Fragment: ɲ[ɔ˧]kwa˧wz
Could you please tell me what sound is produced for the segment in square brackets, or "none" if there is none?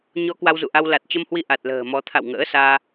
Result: ɔ˧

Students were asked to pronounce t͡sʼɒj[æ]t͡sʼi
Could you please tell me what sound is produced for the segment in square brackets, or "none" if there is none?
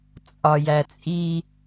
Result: æ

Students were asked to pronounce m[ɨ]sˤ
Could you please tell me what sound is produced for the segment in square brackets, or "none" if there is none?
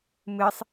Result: ɨ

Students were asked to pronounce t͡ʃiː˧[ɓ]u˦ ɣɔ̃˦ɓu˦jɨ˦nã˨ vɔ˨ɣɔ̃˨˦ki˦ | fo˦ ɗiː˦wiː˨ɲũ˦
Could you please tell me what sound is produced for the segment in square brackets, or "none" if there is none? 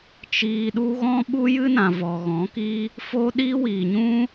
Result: ɗ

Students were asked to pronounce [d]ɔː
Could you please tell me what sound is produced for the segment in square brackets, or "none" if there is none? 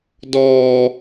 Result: d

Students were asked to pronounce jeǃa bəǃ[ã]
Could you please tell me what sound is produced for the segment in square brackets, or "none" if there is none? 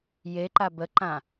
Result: ã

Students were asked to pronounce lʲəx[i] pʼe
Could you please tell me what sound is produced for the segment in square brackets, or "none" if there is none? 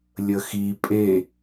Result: i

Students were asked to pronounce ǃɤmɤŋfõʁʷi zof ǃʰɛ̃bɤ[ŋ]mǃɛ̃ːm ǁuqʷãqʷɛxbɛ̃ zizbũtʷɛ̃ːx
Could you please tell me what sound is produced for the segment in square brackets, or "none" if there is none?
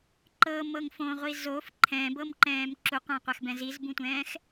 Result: none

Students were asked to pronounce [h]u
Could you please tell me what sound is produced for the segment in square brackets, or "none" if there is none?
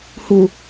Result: h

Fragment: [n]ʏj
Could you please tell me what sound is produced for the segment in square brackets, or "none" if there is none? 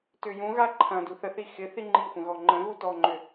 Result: t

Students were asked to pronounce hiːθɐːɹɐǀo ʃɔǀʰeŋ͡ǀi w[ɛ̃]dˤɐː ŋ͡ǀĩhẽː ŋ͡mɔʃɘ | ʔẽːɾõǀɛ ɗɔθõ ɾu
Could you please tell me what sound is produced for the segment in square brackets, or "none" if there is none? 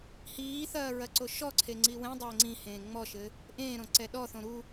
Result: ɛ̃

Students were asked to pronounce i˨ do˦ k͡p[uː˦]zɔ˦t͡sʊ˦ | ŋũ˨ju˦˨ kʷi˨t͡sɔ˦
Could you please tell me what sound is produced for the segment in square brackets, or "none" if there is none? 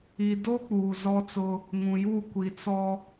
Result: uː˨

